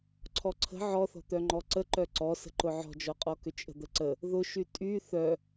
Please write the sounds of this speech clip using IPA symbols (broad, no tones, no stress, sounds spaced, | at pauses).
ǀʰ ɔ ǀʰ ə̤ ʕ ɔ θ ɔ̤ t̪ œ ŋ͡ǃ ɔ ǀ ə ǃ œ ǀ ɔ s ə̤ ǃ ʊ ʕ ɔ̤ d͡ʒ ɔ qʼ ɔ k ʏ t͡ʃʼ ə̤ d̪ ə ǀ ə | ð ʊ ʃ y tʼ y θ œ